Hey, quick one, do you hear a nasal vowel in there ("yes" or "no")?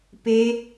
no